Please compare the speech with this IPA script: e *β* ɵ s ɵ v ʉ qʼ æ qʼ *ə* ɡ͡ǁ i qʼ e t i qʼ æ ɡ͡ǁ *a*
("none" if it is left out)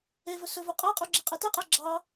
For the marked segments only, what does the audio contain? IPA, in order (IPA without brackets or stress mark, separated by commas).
v, ʉ, ɑ